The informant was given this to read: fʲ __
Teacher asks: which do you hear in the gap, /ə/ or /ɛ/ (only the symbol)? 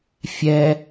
ɛ